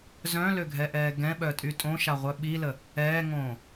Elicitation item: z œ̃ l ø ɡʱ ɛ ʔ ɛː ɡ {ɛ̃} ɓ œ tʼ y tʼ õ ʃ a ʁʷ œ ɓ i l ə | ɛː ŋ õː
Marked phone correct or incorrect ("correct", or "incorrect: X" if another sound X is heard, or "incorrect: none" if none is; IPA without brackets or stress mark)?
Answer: correct